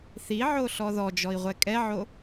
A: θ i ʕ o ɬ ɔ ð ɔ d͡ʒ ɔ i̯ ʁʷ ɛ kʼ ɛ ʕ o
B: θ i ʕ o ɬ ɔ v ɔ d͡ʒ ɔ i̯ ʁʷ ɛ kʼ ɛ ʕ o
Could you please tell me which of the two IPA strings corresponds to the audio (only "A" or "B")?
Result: A